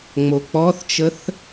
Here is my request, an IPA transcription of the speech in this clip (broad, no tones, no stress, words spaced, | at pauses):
ŋ͡mok͡pɔθt͡ʃəθ